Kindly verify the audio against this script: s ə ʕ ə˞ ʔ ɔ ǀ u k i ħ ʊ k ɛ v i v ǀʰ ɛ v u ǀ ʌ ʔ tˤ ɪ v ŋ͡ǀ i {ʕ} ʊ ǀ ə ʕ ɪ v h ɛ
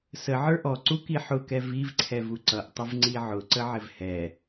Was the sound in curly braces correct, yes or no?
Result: yes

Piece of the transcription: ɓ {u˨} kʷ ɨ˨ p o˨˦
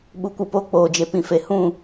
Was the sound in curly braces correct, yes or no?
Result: yes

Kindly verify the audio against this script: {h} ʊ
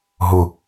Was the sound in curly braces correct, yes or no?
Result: no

